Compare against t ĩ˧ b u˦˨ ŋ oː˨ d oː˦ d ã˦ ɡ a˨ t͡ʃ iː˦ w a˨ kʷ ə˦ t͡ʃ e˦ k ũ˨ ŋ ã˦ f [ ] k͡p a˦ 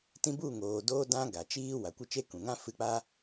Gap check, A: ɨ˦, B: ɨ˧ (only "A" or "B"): B